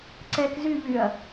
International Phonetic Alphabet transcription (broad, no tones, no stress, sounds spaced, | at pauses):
ǀ ɛ k z y ʎ y ɐ̯